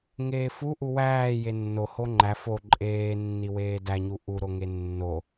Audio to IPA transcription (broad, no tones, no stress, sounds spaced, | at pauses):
ŋ eː f u ʔ u w æː j e nː o h o ŋ͡ǃ æ f o ǃʼ eː nː i w eː d æ ɲ u ʔ u ɾ o ŋ e nː o